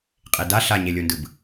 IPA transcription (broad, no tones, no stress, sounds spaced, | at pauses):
qʼ e d a ɬ a ɲ e lʲ o n d ɯ b